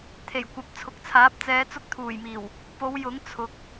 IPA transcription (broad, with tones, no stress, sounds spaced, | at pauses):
t̪ʰ e˨˩ j kʷ ɐ˨˥ p̚ t͡sʰ ʊ˨ k̚ t͡sʰ aː˨˥ p̚ t͡s ɛː˨˧ t͡s ʊ˧ k̚ t̪ʰ uː˨˩ j m iː˨˩ w | p o˨˧ w j ʊ˨˥ ŋ t͡sʰ ʊ˨˥ k̚